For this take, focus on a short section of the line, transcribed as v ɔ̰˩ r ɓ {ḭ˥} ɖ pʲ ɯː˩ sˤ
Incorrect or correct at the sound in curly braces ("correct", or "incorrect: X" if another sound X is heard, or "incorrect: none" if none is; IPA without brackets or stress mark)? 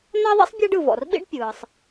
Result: correct